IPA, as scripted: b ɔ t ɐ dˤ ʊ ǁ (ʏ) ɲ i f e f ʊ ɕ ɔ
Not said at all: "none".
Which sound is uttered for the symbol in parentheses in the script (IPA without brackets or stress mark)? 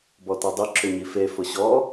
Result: ʏ